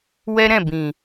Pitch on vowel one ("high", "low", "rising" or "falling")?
high